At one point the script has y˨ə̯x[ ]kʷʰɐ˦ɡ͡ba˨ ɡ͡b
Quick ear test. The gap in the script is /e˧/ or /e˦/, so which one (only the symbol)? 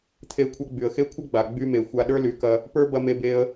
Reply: e˦